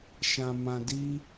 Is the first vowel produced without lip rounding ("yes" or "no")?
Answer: yes